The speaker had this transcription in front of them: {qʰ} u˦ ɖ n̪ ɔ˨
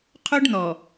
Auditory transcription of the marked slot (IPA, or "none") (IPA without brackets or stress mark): qʰ